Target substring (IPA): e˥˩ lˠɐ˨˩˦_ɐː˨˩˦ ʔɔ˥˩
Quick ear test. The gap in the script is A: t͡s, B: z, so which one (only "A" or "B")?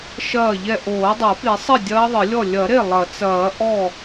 A